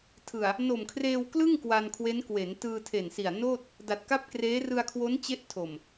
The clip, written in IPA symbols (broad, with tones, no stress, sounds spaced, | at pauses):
tʰ ɯ˨˩ a̯ | n o˨˩ m kʰ r eː˧ w k l ɯ˥˩ ŋ k w a˧ n kʰ w e˦˥ n k w e˩˦ n t ɯː˧ tʰ e˨˩ n s i˨˩ a̯ n oː˥˩ t̚ | d a˨˩ t̚ k a˥˩ p̚ k r eː˦˥ r ɯ˧ a̯ kʰ w o˦˥ n t͡ɕ e˦˥ ʔ tʰ o˨˩ m